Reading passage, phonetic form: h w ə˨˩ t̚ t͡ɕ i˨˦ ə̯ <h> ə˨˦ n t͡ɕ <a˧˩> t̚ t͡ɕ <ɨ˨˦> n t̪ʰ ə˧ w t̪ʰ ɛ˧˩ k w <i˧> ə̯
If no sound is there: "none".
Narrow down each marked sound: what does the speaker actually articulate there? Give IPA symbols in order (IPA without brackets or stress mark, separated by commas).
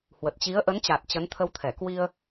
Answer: ʔ, a˨˩, ə˨˦, i˧